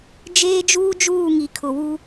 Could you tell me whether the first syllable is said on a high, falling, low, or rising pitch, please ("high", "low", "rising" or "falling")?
high